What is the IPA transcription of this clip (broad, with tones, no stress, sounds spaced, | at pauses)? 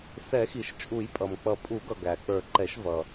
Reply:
s ɛ˨˩˦ x i˩ ʃ t͡ʃʼ u˨˩˦ j pʼ ʌ˩ m k͡p ʌ˨˩˦ pʼ u˨˩˦ ɡ ʌ˩ ɡ æ˩ k͡p ə˞˨˩˦ ǃ ɛ˨˩˦ ʃ v ʌ˩